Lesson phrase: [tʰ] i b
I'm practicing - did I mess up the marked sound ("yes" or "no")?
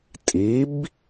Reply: yes